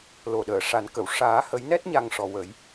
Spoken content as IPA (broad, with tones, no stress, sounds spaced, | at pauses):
l o˨˩ ɗ əː˨˩˨ ʂ a˨˩˦ n k ə˨˩˨ w ʂ aː˨˩˦ h ə˨˩˦ j n ɛ˦˥ t̚ ɲ a˨˩ ŋ ʂ ɔ˨˩ w ə˨˩˦ j